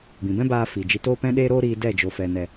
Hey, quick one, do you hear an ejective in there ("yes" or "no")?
no